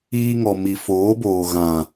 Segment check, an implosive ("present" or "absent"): absent